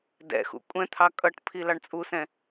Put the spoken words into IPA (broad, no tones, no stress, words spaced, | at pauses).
dɛ̰xṵ kʷʼɛ̃t̪ʰɑ kʼʌʈpʰi lɑɳt͡sʼusɛ̃